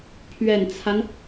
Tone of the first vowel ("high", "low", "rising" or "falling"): low